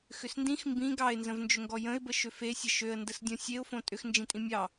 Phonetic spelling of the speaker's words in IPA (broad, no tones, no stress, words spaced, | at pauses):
xʏsndĩx mbĩ ɡɑɪ̯nzə̃vnd͡ʒʏŋɡɔ jə̃ɪ̯bə ʃøfesʲə ʃøə̯ndəsdʲõ sʲeʊ̯fõ tʼʏxnd͡ʒĩ tʼĩmʲɑ